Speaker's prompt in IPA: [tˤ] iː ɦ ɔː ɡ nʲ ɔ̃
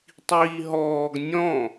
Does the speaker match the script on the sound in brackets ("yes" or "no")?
yes